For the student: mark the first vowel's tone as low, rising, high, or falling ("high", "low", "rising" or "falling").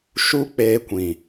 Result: high